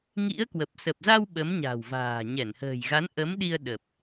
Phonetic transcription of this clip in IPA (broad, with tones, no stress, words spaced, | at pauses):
ŋḭ˧˥ə̯kwə˨˩p̚ sə˨˩p̚za˧w ɓə˨˦mɲa̤˨˩wva̤ː˨˩ ɲɛ˧˩nhə̤ː˨˩jɣa˨˦n ʔə˨˦mɗi˧ə̯ ɗə˨˩p̚